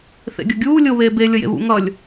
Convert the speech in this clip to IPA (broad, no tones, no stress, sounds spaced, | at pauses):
θ ḛ ɡʲ ʌ ɡʲ uː lʲ o β eː b e lʲ ʌ j ḛ β ṵ ŋ ʌ lʲ